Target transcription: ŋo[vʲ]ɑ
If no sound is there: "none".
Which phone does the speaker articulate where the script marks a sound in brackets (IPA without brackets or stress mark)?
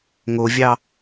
vʲ